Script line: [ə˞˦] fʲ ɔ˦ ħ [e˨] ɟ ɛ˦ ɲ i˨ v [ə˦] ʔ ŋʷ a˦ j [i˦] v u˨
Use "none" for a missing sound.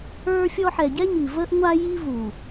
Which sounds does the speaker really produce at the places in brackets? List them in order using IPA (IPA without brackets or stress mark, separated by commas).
ə˞˦, ɛ˨, ə˦, i˦